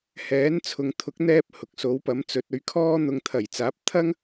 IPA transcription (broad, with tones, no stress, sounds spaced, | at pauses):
h ɛː˨˥ n t͡sʰ ʊ˨ ŋ t̪ʰ ʊ˨˥ k̚ n̪ ɛː˧ p̚ h ʊ˨ k̚ s o˨˥ w p ɐ˨˥ m t͡s ɵ˨˥ t̚ ɵ˨˥ ɥ kʰ ɔː˥ n̪ ʊ˧ ŋ t̪ʰ ɐ˨˩ j t͡s aː˨˥ p̚ t̪ʰ ɐ˥ ŋ